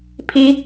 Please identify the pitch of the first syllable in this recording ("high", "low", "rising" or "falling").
high